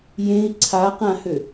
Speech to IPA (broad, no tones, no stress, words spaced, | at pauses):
jẽi̯ ǀʰaqãhø